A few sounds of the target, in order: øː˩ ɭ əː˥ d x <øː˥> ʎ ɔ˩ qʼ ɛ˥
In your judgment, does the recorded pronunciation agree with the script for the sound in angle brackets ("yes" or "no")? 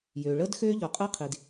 yes